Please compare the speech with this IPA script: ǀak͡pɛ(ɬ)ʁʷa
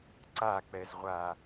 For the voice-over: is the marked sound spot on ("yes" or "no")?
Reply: no